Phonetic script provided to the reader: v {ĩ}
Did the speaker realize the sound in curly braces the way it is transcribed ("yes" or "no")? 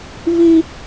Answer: no